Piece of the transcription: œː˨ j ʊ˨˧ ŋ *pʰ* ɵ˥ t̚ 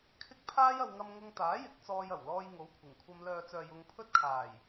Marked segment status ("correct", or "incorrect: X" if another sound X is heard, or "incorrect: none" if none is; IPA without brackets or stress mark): correct